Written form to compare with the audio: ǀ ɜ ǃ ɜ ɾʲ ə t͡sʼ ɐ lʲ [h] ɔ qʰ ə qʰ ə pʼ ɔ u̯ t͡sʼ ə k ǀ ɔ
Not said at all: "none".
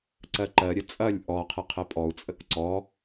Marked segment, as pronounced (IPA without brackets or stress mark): ʔ